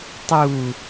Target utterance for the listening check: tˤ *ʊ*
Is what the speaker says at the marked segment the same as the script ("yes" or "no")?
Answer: no